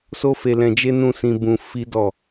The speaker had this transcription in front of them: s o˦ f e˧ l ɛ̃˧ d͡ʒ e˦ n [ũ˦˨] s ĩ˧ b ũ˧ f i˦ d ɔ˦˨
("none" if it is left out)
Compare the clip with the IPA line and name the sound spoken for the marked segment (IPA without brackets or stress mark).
ũ˦˨